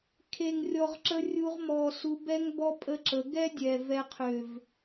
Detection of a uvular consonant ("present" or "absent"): present